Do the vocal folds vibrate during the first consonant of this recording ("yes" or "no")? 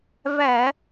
yes